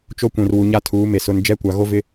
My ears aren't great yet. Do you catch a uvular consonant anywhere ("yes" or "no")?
no